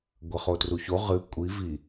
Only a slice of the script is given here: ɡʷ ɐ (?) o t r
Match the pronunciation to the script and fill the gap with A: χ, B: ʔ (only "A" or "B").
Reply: A